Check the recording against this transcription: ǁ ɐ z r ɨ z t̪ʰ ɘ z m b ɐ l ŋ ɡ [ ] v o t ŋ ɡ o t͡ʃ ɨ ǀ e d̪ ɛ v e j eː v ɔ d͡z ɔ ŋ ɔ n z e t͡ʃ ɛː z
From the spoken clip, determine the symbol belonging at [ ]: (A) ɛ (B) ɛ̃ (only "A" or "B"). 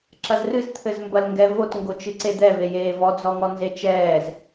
A